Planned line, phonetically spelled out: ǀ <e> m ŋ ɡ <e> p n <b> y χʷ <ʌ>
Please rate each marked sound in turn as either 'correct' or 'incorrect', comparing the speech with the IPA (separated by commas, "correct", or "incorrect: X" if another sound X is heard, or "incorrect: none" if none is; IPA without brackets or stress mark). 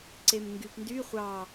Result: correct, incorrect: y, incorrect: d, incorrect: ɑ